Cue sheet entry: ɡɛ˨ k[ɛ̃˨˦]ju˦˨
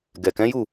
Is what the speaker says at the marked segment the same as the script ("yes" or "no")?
yes